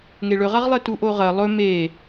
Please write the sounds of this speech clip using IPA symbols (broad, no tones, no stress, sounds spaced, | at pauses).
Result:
ŋ e ɭ ɵ ʁ a ʁ lˠ e t u ʔ o ʁ ɐ lˠ ɵ m e